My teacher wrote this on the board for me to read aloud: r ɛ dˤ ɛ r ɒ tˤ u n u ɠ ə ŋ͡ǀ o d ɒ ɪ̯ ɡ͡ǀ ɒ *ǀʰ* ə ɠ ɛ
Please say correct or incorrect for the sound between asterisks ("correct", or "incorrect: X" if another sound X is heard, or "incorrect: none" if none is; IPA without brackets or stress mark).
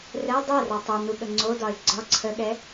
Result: correct